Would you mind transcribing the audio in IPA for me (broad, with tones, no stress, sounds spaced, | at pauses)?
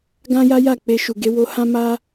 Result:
ɡ ã˦ j a˦ j a˦˨ k͡p e˧ ʃ u˨ ɡ e˧ w o˧ h ã˦ m a˦